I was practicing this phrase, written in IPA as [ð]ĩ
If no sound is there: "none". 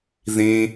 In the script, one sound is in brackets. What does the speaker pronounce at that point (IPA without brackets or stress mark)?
ð